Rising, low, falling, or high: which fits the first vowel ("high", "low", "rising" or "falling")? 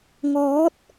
rising